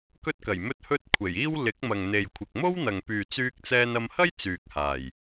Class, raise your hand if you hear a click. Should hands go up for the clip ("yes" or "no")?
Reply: no